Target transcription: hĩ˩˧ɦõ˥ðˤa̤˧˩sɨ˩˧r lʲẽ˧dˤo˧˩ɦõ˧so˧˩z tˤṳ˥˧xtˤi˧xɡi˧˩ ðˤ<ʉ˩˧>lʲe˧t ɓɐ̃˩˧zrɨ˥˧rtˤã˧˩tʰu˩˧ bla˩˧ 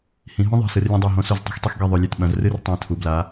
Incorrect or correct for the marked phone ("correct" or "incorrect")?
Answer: correct